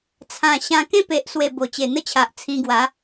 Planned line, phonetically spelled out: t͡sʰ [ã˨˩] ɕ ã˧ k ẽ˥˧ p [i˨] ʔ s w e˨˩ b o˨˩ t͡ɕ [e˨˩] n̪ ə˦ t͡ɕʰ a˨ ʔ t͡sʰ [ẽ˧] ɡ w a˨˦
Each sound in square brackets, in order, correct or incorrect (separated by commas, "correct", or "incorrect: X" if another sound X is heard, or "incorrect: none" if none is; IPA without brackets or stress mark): correct, incorrect: e˨, correct, incorrect: ĩ˧